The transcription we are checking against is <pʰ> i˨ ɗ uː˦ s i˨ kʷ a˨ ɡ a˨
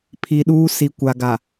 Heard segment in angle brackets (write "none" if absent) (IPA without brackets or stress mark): pʰ